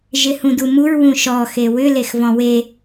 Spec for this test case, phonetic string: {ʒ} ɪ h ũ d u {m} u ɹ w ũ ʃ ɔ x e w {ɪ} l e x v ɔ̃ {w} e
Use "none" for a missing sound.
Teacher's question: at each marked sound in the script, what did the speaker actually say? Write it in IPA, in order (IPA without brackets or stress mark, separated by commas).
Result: ʒ, m, ʏ, w